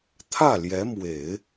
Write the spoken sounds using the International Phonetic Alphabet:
t̪ʰä˥˩ljɛ˧˥mwe˨˩˦ɪ̯

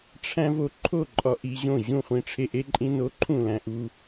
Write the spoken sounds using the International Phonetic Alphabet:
ʈ͡ʂʰæ̃˦vo˦ǃʰo˥˨ ǃʼɒ˦ʔi˦ʑõ˥˨ ʑũ˥˨χʷĩ˦ʈ͡ʂʰe˦ ʔe˦ǃʼĩ˦ no˦ ǃʰũ˥˨læ̃˦ʔu˦

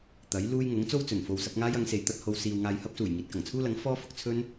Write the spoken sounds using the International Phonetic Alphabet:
t̪ɐ˨˥j luː˥j ŋʊ˨˥ŋt͡so˥w t͡sɵ˨˩nfo˧wsɐ˨˥p̚ ŋaː˥jɐ˨˧ŋse˨˧j t̪ɐ˧t̚ho˧w siː˧w ŋaː˧jhɐ˥p̚suː˨˩j ŋiː˨t̚kɐ˨˩ŋt͡sʰuː˥lɐ˨˥ŋ fɔː˥fʊ˧k̚t͡sʰɵ˥n

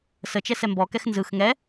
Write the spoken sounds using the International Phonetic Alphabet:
sət͡ʃɛ sɛmbɔkɛx nzɯx ŋɛ

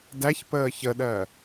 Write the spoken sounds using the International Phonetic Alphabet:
dæç pəːçəɗɜ

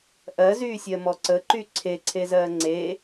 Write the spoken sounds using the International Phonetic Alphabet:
ʔɜzyːsʲɜmɔ ǀəǃy ǀʰeǀʰezɜː ŋ͡ǀe

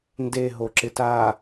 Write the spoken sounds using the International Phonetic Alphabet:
nde ɦoǁɪta

